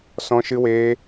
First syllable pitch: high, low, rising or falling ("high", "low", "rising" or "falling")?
high